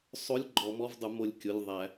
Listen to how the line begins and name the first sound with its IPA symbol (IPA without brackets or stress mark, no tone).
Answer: sˤ